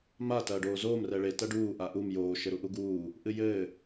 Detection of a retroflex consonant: present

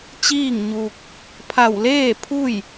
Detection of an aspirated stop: present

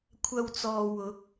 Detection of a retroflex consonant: absent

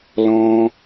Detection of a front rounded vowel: absent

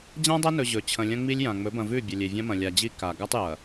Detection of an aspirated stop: present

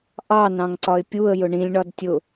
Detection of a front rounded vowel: absent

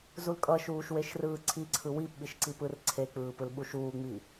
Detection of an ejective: present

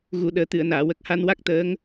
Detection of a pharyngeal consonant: absent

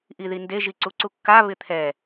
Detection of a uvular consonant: absent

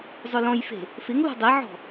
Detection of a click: absent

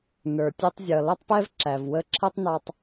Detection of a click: present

